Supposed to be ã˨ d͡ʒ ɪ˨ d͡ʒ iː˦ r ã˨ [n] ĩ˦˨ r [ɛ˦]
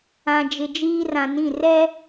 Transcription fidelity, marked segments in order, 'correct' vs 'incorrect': correct, correct

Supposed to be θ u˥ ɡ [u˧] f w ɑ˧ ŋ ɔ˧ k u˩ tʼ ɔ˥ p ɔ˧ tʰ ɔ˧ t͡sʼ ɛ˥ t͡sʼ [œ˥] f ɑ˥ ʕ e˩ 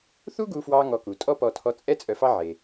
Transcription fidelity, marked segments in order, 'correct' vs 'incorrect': correct, incorrect: œ˧

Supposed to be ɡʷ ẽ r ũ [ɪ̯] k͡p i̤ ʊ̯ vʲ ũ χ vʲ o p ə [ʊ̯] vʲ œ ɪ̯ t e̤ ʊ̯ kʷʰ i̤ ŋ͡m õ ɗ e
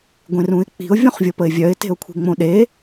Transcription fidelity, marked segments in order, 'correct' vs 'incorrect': correct, incorrect: ɪ̯

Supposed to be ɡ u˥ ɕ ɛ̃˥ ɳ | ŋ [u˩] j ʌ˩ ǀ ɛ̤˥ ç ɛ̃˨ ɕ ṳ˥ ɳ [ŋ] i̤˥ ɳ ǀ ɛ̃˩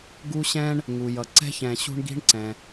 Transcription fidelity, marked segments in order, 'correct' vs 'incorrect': correct, incorrect: ɡ

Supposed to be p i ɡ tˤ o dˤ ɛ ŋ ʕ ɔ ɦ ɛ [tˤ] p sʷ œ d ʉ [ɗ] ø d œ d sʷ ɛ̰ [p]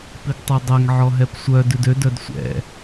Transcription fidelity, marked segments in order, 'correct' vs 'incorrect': incorrect: none, incorrect: d, incorrect: none

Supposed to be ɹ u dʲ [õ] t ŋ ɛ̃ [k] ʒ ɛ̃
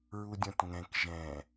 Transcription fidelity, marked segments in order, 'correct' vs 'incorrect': correct, correct

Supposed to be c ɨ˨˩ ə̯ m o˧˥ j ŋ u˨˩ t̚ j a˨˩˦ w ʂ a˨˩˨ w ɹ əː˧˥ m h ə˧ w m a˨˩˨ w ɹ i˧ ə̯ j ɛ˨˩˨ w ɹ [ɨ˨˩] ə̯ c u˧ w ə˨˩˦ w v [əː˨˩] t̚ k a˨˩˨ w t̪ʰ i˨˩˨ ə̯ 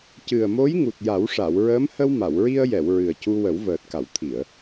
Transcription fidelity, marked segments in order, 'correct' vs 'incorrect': correct, correct

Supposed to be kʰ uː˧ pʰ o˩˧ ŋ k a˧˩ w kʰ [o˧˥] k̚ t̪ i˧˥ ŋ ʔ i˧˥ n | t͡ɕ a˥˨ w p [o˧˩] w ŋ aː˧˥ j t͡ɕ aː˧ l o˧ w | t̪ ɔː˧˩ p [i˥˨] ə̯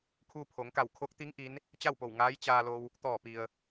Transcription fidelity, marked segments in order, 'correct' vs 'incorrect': correct, correct, incorrect: i˩

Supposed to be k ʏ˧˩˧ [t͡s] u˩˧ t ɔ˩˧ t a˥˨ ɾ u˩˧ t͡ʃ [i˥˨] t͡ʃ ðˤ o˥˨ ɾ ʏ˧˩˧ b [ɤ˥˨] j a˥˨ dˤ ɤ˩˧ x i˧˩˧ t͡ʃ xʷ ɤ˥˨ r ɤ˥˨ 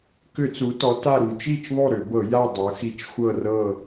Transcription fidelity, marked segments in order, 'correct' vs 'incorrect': correct, correct, incorrect: ɤ˧˩˧

